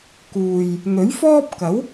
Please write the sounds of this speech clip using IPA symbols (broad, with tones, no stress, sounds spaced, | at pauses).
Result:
k uː˨ j | n̪ ɵ˨˥ ɥ f ɔː˥ p̚ k ɐ˨˥ w